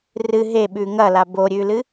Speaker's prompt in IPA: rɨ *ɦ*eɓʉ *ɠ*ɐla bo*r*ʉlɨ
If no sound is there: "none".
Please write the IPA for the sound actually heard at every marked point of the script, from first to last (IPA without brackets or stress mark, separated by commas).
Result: ɦ, ŋ, ɾʲ